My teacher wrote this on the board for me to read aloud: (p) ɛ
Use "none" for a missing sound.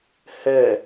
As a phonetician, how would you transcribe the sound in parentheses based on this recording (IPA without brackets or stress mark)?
h